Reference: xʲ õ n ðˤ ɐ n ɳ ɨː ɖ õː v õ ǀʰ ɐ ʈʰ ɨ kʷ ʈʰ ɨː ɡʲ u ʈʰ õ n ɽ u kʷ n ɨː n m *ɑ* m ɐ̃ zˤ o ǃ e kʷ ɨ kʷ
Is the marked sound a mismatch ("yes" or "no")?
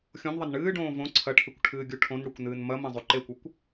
yes